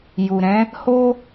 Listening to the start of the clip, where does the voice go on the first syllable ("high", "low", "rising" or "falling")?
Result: low